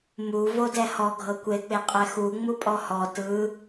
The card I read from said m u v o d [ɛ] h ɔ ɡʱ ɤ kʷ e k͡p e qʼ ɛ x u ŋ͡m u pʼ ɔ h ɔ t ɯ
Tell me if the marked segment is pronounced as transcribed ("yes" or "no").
yes